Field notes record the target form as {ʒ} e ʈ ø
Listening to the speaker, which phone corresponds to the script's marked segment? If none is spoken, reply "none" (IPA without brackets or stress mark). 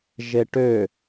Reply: ʒ